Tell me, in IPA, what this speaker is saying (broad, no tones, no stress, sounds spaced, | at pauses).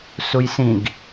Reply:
s u j s ĩ ɡ